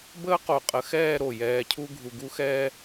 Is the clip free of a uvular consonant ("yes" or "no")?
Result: no